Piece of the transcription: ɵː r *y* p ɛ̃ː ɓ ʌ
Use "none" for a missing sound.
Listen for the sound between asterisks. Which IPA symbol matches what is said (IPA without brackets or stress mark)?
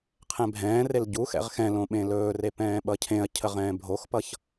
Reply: e